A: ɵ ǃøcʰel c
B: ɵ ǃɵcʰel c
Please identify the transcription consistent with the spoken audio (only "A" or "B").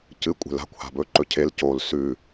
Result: B